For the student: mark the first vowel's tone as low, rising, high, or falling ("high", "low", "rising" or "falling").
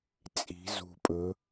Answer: rising